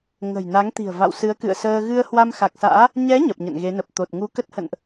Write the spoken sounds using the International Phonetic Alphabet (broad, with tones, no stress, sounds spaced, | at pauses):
ŋ ə̤˨˩ j n a˨˦ ŋ t̪ i̤˨˩ ə̯ v a̰˧˨ w s ɨ˨˦ ə̯ k ɨ̰˧˨ ə̯ s əː˧ ɣ ɨ˧ ə̯ h w a˧ m x a˨˩ k̚ s a̰ː˧˥ | ɲ ɛ˨˦ ɲ ə˨˩ p̚ ɲ ə̰˧˨ n ɣ e˨˦ n ə˨˩ p̚ t̪ o˨˩ t̚ ŋ u˧ k ə˦˥ t̚ h ə̰˧˨ n ʔ